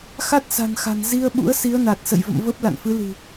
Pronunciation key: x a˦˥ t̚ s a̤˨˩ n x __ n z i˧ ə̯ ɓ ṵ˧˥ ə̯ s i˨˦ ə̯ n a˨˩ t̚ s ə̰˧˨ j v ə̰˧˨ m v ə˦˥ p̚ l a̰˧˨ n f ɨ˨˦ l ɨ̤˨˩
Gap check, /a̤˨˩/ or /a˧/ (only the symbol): a̤˨˩